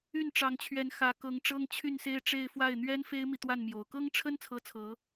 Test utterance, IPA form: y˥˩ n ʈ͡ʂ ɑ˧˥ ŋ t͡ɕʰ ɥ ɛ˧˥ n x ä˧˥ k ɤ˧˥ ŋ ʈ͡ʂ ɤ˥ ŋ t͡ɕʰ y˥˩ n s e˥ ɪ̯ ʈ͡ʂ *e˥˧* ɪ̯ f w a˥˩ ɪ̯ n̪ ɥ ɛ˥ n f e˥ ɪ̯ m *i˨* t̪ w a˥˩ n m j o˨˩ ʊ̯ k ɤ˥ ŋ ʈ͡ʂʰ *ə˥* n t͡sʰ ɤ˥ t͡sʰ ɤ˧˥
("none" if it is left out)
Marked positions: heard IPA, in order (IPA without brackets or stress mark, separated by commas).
e˥˧, i˨, ə˥